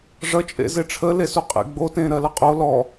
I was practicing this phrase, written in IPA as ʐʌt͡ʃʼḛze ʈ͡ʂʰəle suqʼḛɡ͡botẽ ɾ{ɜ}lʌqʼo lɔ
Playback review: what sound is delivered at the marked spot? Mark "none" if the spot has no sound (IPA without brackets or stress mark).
ɜ